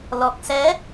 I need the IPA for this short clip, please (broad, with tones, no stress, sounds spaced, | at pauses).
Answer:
l ɔ˨˩ k̚ s ɛ˨˦